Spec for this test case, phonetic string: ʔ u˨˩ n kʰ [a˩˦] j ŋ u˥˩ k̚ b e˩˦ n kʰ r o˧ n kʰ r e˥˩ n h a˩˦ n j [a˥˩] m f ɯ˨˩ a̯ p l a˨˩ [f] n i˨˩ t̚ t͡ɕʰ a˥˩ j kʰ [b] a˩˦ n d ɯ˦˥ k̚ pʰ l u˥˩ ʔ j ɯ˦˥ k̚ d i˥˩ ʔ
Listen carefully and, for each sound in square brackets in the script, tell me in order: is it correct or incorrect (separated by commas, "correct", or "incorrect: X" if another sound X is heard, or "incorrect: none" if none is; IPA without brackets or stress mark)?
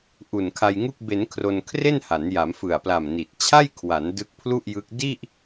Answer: incorrect: a˧, incorrect: a˩˦, incorrect: m, incorrect: w